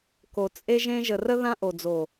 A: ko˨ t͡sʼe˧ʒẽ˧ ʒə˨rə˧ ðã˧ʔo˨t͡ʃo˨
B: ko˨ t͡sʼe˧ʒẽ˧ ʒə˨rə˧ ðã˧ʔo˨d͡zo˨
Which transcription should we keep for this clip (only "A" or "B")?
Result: B